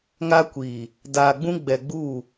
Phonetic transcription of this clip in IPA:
ŋ a˦ kʷ iː˨ | d aː˨ ɡ͡b ũ˦ ɡ͡b ɛ˨ ɡ͡b uː˦˨

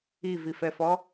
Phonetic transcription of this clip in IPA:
i v i f ɛ f ɔ

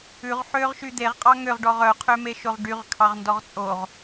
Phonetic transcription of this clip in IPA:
ʉ ʁ ħ ø ʁ ʃ y d̪ e ʁ qʼ ɑ ŋ ø ʁ ɖ ɔ ʁ œ qʰ ø m e ʃ o ʁ ɖ y ʁ kʰ ɑ ʁ n d ɔ ʁ t͡sʼ o ʁ

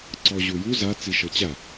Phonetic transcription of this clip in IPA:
ǀ ɔ ʑ u j u z a t͡s i ʃ ɤ t͡ɕ a

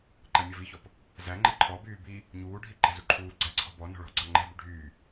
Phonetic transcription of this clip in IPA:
ǃ æ mʲ ɔ v i ç ɔ p | z æ ŋ͡ǃ ɛ ǃʰ ɔ b yː b i | ɲ uː ɖʱ i ǃ ɛ̤ z u ǃʰ uː ɡ͡ǀ æ ǀʰ ɔ̤ b ɔ n ɔ̤ ɭ ɔ̤ ɡ͡ǀ ɑ ŋ͡ǃ ɛ̤ b y ɖʱ yː

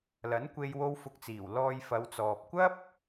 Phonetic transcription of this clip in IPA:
l ɐ˨˥ n kʷ e˧ j w o˧ w f ʊ˨˥ k̚ t͡s iː˨˩ w l ɔː˧ j f ɐ˨˧ w t͡s ɔː˨ p̚ kʷ ɐ˥ p̚

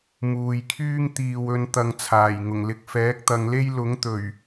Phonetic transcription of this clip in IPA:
m uː˨ j kʰ yː˥ ŋ t̪ iː˨ w ɵ˨˧ n t̪ ɐ˨ ŋ t͡sʰ aː˨˩ j ŋ ʊ˨˩ ŋ l ɪ˨ k̚ f ɛː˨˥ k̚ t̪ ɐ˨˧ ŋ l e˥ j l ʊ˨˥ ŋ t̪ ɵ˨˩ ɥ

